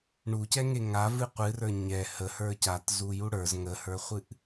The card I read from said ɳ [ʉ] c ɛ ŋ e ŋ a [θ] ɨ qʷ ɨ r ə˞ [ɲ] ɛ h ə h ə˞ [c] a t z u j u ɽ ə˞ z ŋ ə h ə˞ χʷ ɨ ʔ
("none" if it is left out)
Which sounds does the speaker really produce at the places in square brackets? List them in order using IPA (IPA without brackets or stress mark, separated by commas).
u, v, ɲ, c